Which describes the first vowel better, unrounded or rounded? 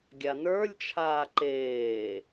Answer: unrounded